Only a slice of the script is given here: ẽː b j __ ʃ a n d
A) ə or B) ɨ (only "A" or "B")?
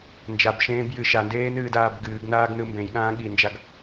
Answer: B